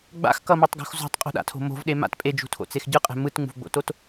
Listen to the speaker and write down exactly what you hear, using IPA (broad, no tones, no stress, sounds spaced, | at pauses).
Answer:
ɡ͡b a̰ x k ʌ m e tˤ ɡ o̤ x z o̤ tˤ qʼ ṳ ɗ a̰ tʰ o̤ m o̤ v ɗ e m a̰ t pʼ e d͡ʒ ṳ tʰ o̰ t͡s e x ɟ ɯ qʼ ɛ̤ m ɯ t ŋ͡m ṳ v ɡ͡b o̰ t o t